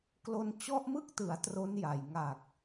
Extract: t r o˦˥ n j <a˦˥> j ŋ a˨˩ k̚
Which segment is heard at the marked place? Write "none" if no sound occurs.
a˨˩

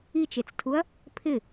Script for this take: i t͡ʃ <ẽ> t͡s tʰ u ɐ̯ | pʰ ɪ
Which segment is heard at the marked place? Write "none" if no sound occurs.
e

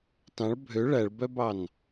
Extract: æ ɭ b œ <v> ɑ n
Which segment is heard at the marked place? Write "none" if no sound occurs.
b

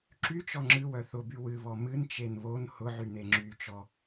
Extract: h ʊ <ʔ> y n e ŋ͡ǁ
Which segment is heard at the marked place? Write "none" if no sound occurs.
ʕ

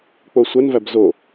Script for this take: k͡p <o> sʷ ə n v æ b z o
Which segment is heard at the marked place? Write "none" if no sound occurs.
o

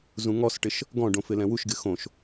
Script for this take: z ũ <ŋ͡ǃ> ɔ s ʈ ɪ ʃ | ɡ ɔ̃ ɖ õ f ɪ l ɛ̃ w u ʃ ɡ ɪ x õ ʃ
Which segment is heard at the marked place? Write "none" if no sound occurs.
ŋ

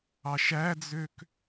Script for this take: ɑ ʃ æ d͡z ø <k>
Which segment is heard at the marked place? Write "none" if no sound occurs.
k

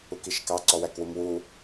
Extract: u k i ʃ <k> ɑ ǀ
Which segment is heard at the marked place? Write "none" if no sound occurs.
k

